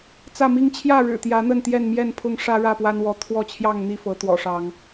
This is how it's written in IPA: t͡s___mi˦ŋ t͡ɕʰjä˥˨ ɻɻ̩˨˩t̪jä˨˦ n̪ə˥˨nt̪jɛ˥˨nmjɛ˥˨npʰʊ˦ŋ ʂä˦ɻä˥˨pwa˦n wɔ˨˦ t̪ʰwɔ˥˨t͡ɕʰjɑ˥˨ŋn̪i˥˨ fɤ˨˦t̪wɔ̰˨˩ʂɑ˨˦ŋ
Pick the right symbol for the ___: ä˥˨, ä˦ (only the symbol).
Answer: ä˥˨